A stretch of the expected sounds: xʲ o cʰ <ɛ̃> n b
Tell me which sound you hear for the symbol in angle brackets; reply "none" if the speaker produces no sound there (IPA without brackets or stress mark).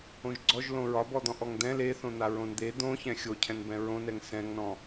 ɛ̃